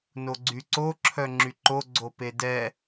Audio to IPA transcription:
n o ɡ͡ǀ y ǀ o ǁʰ œ ŋ͡ǁ y ǃ o ɡ͡ǀ o p e d ɛ

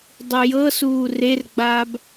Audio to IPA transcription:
dˤ u j ɤ s uː r e r ɡ͡b aː b

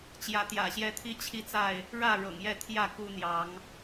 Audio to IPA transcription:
t͡ɕ j ä˨˦ t̪ j ä̰˨˩ ɕ j ɛ˦ t̪ʰ i˦ t͡ɕʰ i˦ t͡s a˥˨ ɪ̯ | ɻ ä˥˨ ɻ ɤ̰˨˩ ŋ j ɛ˥˨ t̪ʰ j ä˥˨ k u˦ n̪ j ɑ˨˦ ŋ

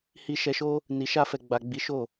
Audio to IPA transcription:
h i˧ ʃ ɛ˧ ʃ o˦ | n i˨ ʃ a˧ f ɛ˨ ɡ͡b a˨ ɡ͡b i˨˦ ʃ o˦˨

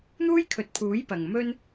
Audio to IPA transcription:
n̪ uː˥ j kʰ ɵ˨˥ t̚ pʰ uː˨˥ j p ɐ˨ ŋ m ɵ˥ n

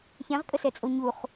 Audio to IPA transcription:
ç ɛ̃ ʁ kʼ ə s ɛ t͡sʼ o ɲ u χ

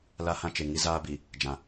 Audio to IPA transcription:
l a˦ h ã˦ t͡ʃ e˨ ŋ i˦ z aː˦ b i˨ | d͡ʒ ã˨

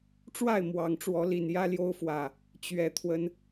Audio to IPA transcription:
ʈ͡ʂ w a˥˨ ɪ̯ m w ɑ˨˩ ŋ ʈ͡ʂ w ɔ˨˦ l i˨˩ n j ä˦ l j o˦ ʊ̯ f w ä˨˩ | t͡ɕ ɥ ɛ˨˩ t̪ʰ w ə˦ n

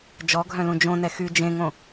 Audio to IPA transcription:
d͡ʒ ɔ ɡʱ œ̃ l ũ d͡ʒ õ n ɛ x y d͡ʒ ẽ ŋ õ

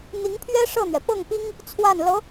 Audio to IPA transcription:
n̪ i˧˥ ŋ pʰ ɥ ɛ˥ ʂ ɤ˥˩ n̪ ɥ ɛ˩ p ɤ˥˩ ŋ p i˥ ŋ | t͡sʰ w a˥˩ n l ɤ˧˥

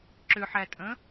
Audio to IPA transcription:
ǁ ʏ ħ æ tʼ ə̃

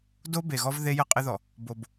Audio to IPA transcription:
d o˦ b e˨ ɣ ɔ˦ v ð e˦ j ə˦ qʼ ɪ˦ ð ɔ˨ | b o˨ b

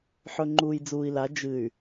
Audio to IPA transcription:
ħ ɵ˨ ŋ͡ǃ uː˨ j d͡z uː˨ i̯ l a˨˦ d͡ʒ ɨ˨ y̯

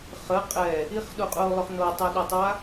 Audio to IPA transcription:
χ ə qʼ ɛ | i χ ɗ u qʼ u o̯ lˠ ʏ χ n o tˤ ɛ ɗ ɐ tˤ a

